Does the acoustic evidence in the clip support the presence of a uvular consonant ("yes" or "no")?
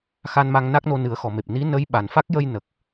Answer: no